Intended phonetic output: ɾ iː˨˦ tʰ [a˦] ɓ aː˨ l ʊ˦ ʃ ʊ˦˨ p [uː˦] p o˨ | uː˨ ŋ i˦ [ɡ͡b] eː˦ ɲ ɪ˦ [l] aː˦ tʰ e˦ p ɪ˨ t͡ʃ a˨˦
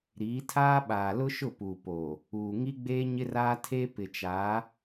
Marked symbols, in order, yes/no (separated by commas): no, no, yes, no